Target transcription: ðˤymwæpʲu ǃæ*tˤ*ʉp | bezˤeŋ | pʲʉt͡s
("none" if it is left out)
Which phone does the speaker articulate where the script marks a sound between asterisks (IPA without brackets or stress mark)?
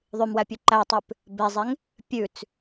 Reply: tˤ